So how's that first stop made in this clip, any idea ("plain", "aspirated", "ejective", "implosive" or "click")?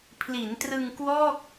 aspirated